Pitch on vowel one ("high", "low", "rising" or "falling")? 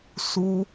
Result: high